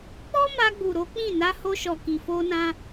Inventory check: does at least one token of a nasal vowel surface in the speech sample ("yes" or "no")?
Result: yes